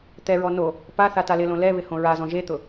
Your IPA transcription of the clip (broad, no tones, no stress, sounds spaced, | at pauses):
t̪ ɛ ɹ ɔ n o | p a θ a t a l ɪ l õ l ɛ β ɪ h õ ɹ a z ɔ̃ ʒ e t̪ ʊ